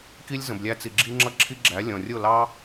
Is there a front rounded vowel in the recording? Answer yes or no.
no